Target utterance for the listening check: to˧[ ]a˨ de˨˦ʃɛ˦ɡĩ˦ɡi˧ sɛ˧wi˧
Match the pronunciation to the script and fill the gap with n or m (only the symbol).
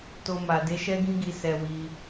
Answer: m